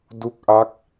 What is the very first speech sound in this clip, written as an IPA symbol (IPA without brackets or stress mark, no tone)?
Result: d